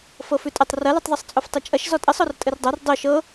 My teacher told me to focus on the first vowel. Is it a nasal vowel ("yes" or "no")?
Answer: no